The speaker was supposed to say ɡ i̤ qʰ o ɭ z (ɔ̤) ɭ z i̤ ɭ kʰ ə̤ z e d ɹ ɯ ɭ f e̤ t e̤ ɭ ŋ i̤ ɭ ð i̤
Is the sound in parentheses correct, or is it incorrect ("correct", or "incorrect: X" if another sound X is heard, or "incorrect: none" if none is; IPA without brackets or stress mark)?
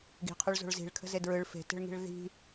incorrect: o̤